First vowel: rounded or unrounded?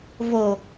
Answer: rounded